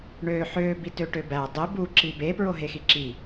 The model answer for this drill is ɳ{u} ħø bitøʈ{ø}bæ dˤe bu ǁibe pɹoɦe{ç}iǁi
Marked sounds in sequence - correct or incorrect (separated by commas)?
incorrect, correct, incorrect